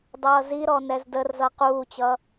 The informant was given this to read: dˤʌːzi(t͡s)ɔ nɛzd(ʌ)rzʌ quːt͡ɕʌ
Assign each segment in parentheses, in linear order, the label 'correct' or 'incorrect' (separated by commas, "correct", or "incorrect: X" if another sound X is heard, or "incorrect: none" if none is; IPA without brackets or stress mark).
incorrect: ɾ, incorrect: ə